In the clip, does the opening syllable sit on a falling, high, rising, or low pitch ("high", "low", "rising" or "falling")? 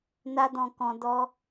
high